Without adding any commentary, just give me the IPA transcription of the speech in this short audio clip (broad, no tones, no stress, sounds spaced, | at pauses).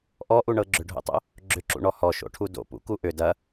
ʔ ɔ ʔ u ɳ ɤ ɡ͡ǁ ʏ ɖʱ o̰ tˤ o̰ | ɡ͡ǁ ʏ ǁ ṵ ɳ ɔ h ɔ ʃ o̰ ʈʰ u d o̰ p ṵ k u ʔ ʏ d ɐ